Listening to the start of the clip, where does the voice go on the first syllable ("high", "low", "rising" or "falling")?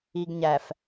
low